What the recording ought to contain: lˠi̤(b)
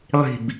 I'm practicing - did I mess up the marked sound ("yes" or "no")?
no